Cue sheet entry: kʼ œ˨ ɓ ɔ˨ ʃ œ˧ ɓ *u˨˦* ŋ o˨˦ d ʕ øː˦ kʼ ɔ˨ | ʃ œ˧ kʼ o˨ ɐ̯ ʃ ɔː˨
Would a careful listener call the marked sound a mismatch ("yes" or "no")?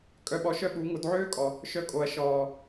no